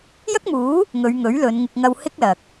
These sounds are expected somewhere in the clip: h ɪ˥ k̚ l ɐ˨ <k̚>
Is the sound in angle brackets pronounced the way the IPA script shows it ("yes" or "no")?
yes